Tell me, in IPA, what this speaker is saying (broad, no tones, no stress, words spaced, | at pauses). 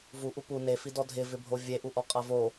vuʔu pu nefidɔ dʱɪvɪbʱo vʲeʔuʔɔqʼa vo